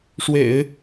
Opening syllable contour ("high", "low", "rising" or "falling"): low